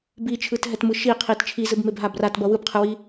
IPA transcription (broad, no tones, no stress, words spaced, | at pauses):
bit͡ʃʰɯtɦɛtmɯ ʃiqʰit t͡ʃʰizɯbmebɦa bratbʌ wɯbqʰɯwi